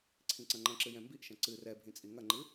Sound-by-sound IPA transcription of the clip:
ǀʰĩǀɐ̃ŋ͡ǃɐ̃ǁɨ jɛ̃mbiʔʃɐ̃ ǀɨ rɛbʱĩ t͡sʼiŋɐŋ͡ǃɨ

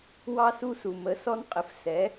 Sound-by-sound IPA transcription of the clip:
wɑ˦su˦su˩ mə˩˥ sɔ˦nqʼɪ˩˥fsɛ˩˥

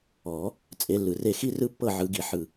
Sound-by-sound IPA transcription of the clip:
ɔ˨˩˦ | t͡sʼe˨˦lːɯ˩re˥˨ xi˥rɯ˥ pːɤ˥˨ʕɯ˨˩˦ɡi˩ ħɯ˩

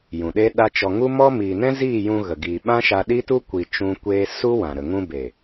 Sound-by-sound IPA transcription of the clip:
jũ˨ɗe˦ɗa˦t͡ʃɔ˧ ŋu˦mɔ˦ miː˨nɛ̃˦ziː˦˨ jũ˧ɣə˨ ɡi˧ ɓã˦ʃa˧ɗi˦tu˦ kʷi˧t͡ʃũ˦kʷeː˦ su˦wã˨ ɾə˨ ŋũ˧be˨

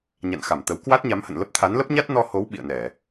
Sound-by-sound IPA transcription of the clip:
ɲa̰˧˨nxa˧˩mt̪ə˨˦w kwa˦˥t̚ɲa˨˦mhə̰˧˨nlə˦˥p̚ t̪ʰa˨˦nlə˦˥p̚ɲa˦˥t̚ nɔ˧ho˨˦w ɓḭ˧˨ə̯nɛ˧˩˨

